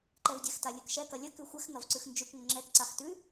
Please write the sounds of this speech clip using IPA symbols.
ǃ ɛ v dʲ ɛ x t a lʲ ʉ k ʃ ɛ k ɐ lʲ ə k ʉ xʷ ɛ x ŋ ɐ v ǀ ʉ x n d͡ʒ ʉ k ŋʷ ə ŋ͡ǁ ɛ k ǀ a x t ʉ

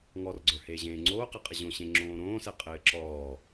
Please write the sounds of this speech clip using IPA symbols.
ŋ ɔ r ɡ͡ǀ ə˞ h eː ʑ ẽː ŋ͡ǀ oː q ɛ qʼ ɘ ʑ õ ɕ ẽ ŋ͡ǁ õː ɾ õː s ɛ qʼ ɘː ǁ ɔː

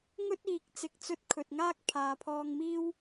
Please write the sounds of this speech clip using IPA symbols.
ŋ ɵ˥ t̚ iː˨ k̚ t͡s ɪ˨ k̚ t͡s ɵ˧ t̚ kʰ ɵ˨ t̚ ŋ aː˥ k̚ pʰ aː˨ pʰ ɔː˧ ŋ m iː˥ w

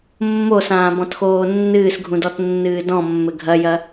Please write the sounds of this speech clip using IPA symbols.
mː o s ãː b ɔ̃ t x oː nː ɨː s ɡʱ ũ d ɔ t nː ɨː d ɔ̃ mː ɘ ɡʱ ɐ j ɐ

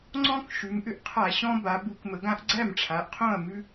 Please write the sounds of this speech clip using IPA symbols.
ŋ͡ǀ ɔ̃˦ k ʃ ʉ˩˧ m ʔ ʏ˦ ʔ qʰ a˧˩˧ ɕ ɔ̃˦ b a˩˧ b u˧˩˧ k m ə˩˧ ɡ ã˦ ʔ ɡ͡ǀ æ˥˨ m ʈ͡ʂʰ a˩˧ ʔ qʰ õ˥˨ ɐ̯ m ʉ˦

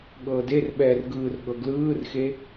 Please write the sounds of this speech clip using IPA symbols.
ɠ ɤː d e r ɓ ɛː r ɡ ɯː r ɠ ɤ ɡ l ɯː r x e

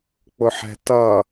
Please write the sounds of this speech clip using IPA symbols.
k͡p ʊ ħ ɛ̤ t ʌ

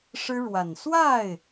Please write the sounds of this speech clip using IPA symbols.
ʂ ɻ̩˥ ɻ w a˨˩ n s w a˥˩ ɪ̯

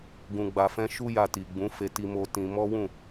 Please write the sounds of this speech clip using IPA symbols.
ɡ ũ˧ ɡ͡b a˧ f ɛ̃˦ ʃ u˦ j a˧ t i˨ ɡ͡b ũ˨˦ f e˧ t i˧ m o˧ t ĩ˧ m ɔ˦ w ũ˦˨

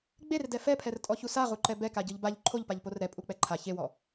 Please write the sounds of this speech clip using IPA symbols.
ɡ͡b e r d ɛ f ɛ pʰ ɛ r tʼ ɔ ç u s a ʁ u ǃ ɛ b ɛ k a ɟ ɯ ʎ b a ʎ ǃʰ o ʎ p a ʎ p o r ɾ ɛ pʼ u k͡p ɛ ǃʰ a ç e w ɔ

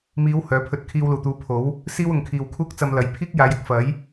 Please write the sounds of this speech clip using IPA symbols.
m iː˨˧ w h œː˨˥ pʰ ɵ˧ t̚ kʰ iː˧ w l uː˨˩ t̪ uː˨˧ pʰ o˨˥ w | s iː˥ w ʊ˨ ŋ kʰ iː˨ w kʰ uː˥ k̚ t͡s ɐ˧ m l ɐ˨˥ j pʰ iː˥ k̚ j aː˨˧ j ɪ˨ k̚ f ɐ˨˥ j

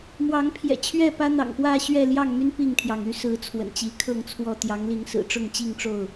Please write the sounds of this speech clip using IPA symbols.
m w ɑ˨˦ ŋ pʰ j ɛ̰˨˩ t͡ɕʰ ɥ ɛ˥˨ p ä˦ n̪ ɑ̰˨˩ ŋ p w ä˥˨ ɕ ɥ ɛ˥˨ l j ɑ˥˨ ŋ m y˦ n p i˥˨ ŋ t̪ʰ j ɑ˩ ŋ y˦ s ɹ̩˨˦ t͡sʰ w ə̰˨˩ n t͡ɕ i˨˦ kʰ ɤ˥˨ ŋ t͡sʰ w ɔ˥˨ t̪ j ɑ˨˦ ŋ l i˨˦ ŋ s ɹ̩˨˩ ʈ͡ʂ ʊ˥˨ ŋ t͡ɕ i˥˨ ŋ ʈ͡ʂ o˥˨ ʊ̯

